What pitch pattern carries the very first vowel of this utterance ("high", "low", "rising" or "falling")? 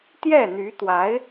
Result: falling